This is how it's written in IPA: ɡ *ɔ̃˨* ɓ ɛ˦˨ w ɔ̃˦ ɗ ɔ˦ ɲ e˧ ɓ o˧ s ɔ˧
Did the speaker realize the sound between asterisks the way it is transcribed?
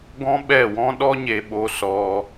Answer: no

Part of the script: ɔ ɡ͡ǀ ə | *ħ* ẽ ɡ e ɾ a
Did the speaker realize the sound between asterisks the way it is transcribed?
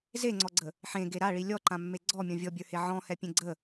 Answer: yes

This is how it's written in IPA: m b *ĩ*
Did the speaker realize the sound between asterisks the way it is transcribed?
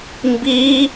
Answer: no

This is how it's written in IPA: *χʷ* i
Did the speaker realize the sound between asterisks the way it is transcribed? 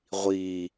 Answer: no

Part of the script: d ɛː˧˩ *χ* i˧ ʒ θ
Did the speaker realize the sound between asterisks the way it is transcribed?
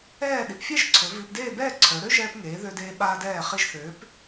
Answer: yes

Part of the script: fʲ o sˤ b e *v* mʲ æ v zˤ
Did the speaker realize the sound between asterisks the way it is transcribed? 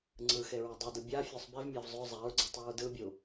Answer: yes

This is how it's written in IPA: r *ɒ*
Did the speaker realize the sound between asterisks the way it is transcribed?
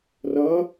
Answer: no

